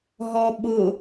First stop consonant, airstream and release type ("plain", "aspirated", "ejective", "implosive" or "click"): implosive